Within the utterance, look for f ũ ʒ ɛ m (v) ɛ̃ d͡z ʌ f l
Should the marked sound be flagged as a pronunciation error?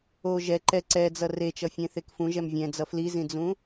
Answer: yes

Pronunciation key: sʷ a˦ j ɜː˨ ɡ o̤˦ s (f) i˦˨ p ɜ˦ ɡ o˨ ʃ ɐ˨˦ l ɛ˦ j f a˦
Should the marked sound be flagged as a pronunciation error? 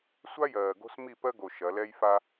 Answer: yes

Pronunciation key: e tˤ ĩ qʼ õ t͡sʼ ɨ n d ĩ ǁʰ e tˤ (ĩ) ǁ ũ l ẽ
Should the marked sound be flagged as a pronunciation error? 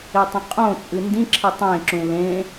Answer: yes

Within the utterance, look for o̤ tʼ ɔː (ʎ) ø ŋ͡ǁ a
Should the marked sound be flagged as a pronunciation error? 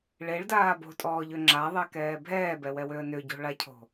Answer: no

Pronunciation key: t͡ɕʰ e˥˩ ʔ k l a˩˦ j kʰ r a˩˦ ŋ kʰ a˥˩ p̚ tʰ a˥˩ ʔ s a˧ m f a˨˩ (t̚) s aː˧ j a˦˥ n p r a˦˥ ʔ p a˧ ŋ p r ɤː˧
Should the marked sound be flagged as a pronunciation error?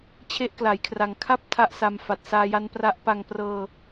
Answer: no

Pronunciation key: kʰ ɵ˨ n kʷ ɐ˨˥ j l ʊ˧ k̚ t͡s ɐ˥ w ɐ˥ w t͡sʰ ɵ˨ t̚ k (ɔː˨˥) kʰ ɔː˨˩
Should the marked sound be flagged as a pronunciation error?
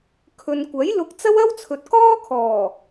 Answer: yes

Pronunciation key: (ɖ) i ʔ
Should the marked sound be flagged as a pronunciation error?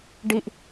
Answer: no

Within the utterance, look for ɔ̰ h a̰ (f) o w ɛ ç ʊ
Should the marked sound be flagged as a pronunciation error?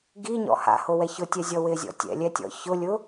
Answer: yes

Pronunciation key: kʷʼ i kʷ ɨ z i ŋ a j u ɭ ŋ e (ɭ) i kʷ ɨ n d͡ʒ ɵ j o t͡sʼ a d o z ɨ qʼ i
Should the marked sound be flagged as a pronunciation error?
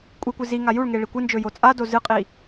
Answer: no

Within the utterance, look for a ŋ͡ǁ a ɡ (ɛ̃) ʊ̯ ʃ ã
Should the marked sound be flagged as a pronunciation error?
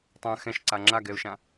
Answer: yes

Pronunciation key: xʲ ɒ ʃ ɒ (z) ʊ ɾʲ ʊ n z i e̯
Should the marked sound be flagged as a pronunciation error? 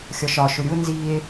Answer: yes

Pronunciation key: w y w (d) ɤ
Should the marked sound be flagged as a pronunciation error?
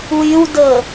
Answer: no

